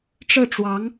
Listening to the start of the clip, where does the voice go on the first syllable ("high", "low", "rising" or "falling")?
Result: falling